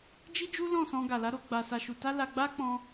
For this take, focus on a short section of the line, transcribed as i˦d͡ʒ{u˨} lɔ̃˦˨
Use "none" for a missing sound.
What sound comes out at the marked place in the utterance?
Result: u˦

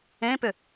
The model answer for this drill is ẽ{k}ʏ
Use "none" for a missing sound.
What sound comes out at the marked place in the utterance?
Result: p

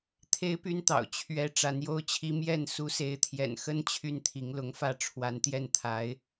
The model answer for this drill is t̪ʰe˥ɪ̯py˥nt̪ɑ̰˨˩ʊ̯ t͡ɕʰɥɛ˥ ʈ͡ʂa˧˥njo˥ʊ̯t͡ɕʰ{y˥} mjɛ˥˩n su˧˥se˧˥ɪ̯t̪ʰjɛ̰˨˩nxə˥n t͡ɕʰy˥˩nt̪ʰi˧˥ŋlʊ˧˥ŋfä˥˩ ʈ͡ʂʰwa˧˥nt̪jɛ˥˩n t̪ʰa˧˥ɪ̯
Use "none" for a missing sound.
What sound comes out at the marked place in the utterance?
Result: i˥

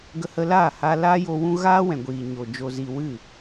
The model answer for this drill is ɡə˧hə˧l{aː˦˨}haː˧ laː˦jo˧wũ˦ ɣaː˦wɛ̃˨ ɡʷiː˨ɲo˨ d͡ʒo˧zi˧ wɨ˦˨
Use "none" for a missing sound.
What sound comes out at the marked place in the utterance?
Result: aː˦˨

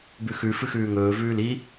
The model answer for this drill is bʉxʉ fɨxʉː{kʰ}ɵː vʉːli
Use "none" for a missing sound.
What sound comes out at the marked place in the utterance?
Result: ŋ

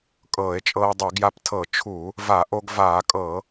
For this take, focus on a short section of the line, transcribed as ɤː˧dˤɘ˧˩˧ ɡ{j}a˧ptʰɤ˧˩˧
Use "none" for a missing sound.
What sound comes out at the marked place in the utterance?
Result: j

